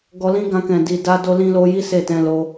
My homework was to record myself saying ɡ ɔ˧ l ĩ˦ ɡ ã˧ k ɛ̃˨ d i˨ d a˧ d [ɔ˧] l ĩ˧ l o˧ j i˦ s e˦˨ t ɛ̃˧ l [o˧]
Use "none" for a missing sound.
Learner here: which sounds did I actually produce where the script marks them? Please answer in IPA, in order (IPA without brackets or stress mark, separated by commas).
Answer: o˧, o˧